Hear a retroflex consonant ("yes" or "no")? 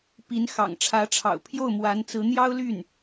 yes